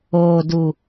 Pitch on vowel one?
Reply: low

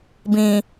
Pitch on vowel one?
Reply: low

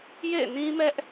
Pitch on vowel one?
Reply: falling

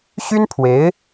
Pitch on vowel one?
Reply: high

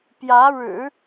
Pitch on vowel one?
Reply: rising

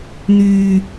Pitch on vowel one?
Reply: low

